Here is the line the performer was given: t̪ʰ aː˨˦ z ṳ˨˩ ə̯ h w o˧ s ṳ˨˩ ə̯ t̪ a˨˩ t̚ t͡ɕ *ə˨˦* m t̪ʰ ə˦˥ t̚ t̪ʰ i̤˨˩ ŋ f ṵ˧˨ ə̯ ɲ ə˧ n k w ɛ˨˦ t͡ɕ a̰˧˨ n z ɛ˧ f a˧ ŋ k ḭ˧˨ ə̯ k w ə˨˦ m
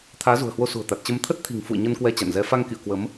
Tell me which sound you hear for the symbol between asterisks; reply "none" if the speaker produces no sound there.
ə˧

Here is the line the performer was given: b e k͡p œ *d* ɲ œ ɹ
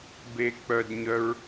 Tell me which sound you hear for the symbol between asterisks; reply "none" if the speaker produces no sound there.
d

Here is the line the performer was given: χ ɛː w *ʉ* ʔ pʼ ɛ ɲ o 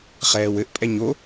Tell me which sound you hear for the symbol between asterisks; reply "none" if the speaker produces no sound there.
ɘ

